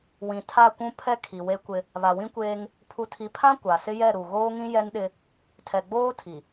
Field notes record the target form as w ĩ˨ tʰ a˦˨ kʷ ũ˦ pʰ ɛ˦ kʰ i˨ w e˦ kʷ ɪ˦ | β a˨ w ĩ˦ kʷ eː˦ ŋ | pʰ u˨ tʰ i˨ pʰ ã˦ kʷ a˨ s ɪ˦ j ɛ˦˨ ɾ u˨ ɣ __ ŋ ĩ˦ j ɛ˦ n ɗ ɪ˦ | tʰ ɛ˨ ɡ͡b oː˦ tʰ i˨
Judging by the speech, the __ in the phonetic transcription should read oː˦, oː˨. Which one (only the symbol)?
oː˦